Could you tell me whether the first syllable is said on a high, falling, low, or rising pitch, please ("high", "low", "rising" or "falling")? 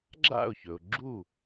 falling